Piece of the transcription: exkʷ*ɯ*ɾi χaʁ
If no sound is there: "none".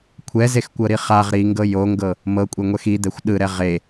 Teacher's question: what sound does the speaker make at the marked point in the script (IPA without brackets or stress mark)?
ɤ